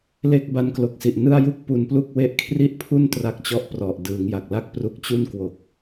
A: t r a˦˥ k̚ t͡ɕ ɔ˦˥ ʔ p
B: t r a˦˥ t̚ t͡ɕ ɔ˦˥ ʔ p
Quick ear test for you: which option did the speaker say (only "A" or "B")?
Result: A